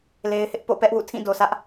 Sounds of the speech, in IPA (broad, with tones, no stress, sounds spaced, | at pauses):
l e˦ ɪ̯ h ɪ˦ ʔ p o̰˦˨ p ɛ˦ ʔ w ṵ˦˨ tʰ ĩ˦˨ d o˨ sʰ ä˦ ʔ